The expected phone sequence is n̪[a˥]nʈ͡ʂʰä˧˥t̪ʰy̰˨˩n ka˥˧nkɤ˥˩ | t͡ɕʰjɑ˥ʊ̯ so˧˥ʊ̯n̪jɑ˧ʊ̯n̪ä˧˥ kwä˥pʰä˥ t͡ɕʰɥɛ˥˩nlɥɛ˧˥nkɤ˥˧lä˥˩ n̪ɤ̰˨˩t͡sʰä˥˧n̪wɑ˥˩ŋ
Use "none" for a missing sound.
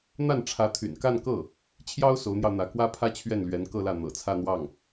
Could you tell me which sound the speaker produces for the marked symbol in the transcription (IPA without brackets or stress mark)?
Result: a˥˩